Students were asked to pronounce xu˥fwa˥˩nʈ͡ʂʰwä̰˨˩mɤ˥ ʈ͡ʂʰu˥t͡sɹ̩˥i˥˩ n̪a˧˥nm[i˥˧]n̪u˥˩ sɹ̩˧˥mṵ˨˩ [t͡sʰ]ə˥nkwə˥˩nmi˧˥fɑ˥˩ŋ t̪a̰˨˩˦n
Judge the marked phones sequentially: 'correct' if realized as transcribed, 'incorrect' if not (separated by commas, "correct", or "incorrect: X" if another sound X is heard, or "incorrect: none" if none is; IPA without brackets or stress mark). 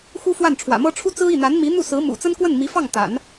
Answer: incorrect: i˧˥, incorrect: t͡s